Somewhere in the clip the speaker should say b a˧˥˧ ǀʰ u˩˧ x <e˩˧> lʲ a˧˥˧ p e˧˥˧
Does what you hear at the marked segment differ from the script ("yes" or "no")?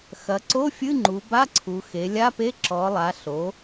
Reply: no